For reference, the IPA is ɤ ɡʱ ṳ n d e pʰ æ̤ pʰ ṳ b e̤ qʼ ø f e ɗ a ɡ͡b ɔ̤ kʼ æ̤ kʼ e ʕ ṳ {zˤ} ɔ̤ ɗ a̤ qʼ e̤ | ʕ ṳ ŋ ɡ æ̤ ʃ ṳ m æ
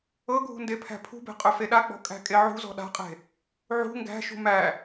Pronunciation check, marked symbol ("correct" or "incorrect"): incorrect